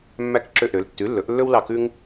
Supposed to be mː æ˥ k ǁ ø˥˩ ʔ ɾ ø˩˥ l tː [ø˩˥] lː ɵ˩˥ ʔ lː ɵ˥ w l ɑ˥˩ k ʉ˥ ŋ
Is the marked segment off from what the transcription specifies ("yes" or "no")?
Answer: yes